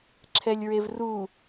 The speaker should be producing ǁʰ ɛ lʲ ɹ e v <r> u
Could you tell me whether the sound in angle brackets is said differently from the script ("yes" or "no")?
no